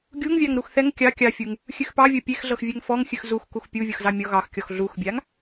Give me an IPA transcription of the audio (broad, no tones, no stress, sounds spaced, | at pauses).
ɡʲ u ŋ vʲ ɑ ŋ ɾ u x θ ɛ ŋ kʲ ɑ kʲ ɑ fʲ u ŋ | xʲ ʉ x p ɑ vʲ ɤ pʲ e x ɮ ɤ x vʲ ɛ ŋ f ɔ ŋ xʲ ʉ x z u x k u x pʲ u vʲ ɤ x z ɑ mʲ ɔ ɣ ɑ x kʲ ɔ x ɮ u x bʲ a ŋ